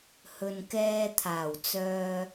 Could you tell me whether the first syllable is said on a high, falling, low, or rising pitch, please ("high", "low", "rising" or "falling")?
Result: low